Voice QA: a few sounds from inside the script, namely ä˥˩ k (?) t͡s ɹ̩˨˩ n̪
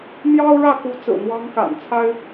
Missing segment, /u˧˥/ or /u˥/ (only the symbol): u˧˥